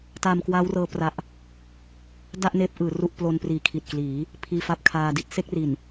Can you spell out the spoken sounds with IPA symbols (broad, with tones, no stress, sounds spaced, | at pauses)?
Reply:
t a˧ m k w a˦˥ w r ɤː˧ p r a˦˥ ʔ | d a˥˩ ʔ n eː˦˥ p̚ ʔ ɯː˩˦ r u˥˩ ʔ p l o˧ n p r iː˨˩ kʰ i˨˩ t̚ k l iː˩˦ | pʰ iː˧ f a˦˥ p̚ kʰ aː˧ d i˦˥ t̚ s e˥˩ k̚ r i˨˩ n